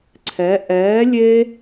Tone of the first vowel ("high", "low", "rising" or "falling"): rising